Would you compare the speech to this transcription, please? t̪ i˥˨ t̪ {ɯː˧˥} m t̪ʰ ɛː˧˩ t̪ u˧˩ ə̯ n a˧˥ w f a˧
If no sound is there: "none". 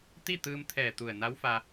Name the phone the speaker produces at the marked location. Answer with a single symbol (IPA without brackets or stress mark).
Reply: ɯː˧